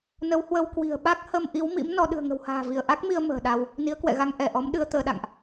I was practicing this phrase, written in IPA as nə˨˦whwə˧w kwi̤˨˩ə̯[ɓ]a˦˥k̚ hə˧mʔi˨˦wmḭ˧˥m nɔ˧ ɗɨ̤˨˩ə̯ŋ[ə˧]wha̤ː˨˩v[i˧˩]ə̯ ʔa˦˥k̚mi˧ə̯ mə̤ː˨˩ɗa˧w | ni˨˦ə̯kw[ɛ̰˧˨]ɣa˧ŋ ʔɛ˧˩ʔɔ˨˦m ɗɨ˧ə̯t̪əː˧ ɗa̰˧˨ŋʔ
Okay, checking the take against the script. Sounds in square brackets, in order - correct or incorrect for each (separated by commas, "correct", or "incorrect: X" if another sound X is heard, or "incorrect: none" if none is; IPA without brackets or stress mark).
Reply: correct, incorrect: ə̤˨˩, correct, correct